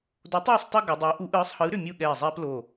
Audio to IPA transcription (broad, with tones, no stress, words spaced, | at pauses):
do˨˥tˤɯː˥˨sˤtˤɛ˦ ɡɯ˩˧dˤʏː˨˥ ʔu˨˥ʔɯː˨˥sˤhɯː˨˥ ɾʏ˥˨ mʲu˥˨ɠɛː˧˩zˤɛː˦plo˧˩